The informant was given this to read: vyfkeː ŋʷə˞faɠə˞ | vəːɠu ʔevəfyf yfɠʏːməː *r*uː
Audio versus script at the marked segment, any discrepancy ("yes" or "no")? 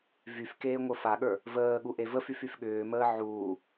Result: yes